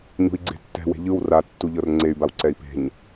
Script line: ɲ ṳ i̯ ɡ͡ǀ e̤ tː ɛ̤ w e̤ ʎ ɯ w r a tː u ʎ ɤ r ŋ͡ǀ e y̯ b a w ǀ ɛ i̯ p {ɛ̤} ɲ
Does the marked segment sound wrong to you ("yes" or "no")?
yes